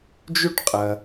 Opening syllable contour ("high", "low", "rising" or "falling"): high